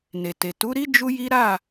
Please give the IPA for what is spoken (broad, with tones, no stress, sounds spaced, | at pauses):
n e˨ t e˨ t u˨˦ ɾ i˦ d͡ʒ u˦ j i˦ ɾ a˦˨